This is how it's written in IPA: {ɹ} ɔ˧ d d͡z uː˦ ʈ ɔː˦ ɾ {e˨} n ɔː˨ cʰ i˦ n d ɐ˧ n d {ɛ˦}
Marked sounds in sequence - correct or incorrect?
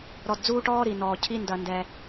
incorrect: ɾ, incorrect: i˨, incorrect: ɛ˧

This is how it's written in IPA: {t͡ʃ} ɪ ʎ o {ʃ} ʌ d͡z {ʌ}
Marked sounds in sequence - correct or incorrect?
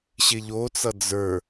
incorrect: ɕ, incorrect: t͡s, incorrect: ə˞

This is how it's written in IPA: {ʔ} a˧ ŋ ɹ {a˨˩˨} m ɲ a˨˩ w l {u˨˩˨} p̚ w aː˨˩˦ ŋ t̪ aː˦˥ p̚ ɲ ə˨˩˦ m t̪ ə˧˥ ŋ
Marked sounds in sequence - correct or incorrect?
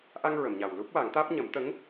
correct, incorrect: ə˨˩˨, incorrect: u˦˥

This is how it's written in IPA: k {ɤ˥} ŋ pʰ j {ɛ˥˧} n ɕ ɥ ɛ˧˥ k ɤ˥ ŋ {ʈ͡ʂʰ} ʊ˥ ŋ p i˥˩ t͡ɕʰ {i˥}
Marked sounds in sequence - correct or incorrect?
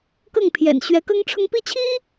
incorrect: ɤ˥˩, incorrect: ɛ̰˨˩, correct, correct

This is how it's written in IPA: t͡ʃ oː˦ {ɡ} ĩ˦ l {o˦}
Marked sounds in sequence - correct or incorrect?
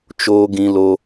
correct, correct

